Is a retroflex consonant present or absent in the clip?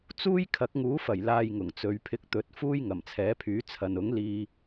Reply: absent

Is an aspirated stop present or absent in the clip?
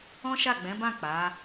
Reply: absent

